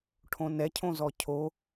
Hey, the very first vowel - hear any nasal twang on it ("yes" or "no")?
yes